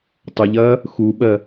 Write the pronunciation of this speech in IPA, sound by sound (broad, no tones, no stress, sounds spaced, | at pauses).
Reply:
tˤ ə ʎ ɐː | x u ɓ ɜ